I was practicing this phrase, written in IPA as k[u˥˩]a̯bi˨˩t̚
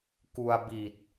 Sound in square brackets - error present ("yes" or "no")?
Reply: yes